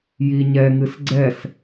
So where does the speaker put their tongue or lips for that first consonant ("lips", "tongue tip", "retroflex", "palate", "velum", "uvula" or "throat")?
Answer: palate